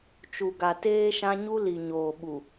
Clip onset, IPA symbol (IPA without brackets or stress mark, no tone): t͡ʃ